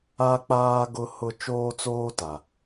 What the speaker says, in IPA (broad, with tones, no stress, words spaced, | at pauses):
a˦k͡paː˦ ɡʊ˦hʊ˦ t͡ʃoː˦t͡soː˦ ta˨